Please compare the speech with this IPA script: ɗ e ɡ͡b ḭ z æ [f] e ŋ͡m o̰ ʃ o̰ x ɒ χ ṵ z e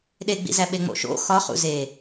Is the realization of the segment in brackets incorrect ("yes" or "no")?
yes